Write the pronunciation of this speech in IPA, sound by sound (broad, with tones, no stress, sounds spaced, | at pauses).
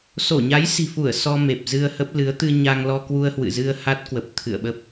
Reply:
s o˧˩ ɲ a˨˦ j s i̤˨˩ f u˧˩ ə̯ s ɔ˧ m e˨˩ p̚ z ɨ˧ ə̯ h ə˦˥ p̚ l ɨ˨˦ ə̯ t̪ ɨ˧ ɲ a˧ ŋ l ɔ˧ k w u˧ ə̯ h w ɨ̰˧˨ z ɨ˧ ə̯ h a˦˥ t̚ k w ə˨˩ p̚ t̪ʰ ɨ̰˧˨ ə̯ ɓ ə˦˥ p̚